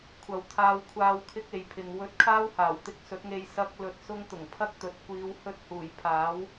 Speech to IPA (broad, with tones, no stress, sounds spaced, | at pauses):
kʷʰ ɐ˨ w t̪ʰ aː˧ w kʷʰ aː˧ w kʰ ɪ˥ k̚ e˨ j pʰ ɪ˨ ŋ w ɵ˧ t̚ kʰ aː˥ w h aː˨˩ w t̪ ɪ˧ k̚ s ɵ˨˥ t̚ ŋ e˧ j s ɐ˥ k̚ l ɵ˧ t̚ s ʊ˥ ŋ t̪ ʊ˨˩ ŋ pʰ ɐ˥ k̚ t̪ ɵ˨ t̚ kʷ iː˨˧ w h ɵ˧ t̚ h uː˨˩ j pʰ aː˨˥ w